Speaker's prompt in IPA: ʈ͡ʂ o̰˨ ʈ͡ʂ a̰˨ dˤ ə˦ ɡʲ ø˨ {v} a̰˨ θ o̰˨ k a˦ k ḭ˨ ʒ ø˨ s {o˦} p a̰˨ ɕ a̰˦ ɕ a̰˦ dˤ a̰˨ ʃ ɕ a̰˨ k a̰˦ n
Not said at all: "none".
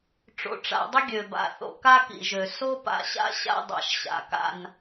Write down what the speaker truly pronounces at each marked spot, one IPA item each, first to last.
b, o˦

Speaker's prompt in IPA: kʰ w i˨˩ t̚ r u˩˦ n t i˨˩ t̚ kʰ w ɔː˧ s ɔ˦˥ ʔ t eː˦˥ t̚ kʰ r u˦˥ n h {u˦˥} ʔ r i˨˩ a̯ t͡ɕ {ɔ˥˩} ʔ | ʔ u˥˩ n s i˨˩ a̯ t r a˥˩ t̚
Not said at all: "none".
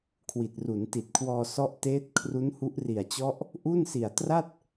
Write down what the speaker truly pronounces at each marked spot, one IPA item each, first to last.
u˦˥, ɔ˦˥

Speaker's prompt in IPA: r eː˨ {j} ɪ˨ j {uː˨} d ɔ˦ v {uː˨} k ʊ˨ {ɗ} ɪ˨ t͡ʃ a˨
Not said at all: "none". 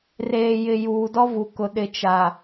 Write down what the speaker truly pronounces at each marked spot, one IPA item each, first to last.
j, uː˨, u˨, ɗ

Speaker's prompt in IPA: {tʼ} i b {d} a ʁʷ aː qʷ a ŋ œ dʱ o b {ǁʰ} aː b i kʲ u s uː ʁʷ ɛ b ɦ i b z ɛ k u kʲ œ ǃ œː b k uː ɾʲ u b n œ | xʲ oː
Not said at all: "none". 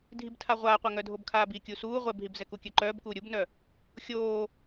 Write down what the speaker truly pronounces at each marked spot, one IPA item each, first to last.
dʱ, tʰ, kʰ

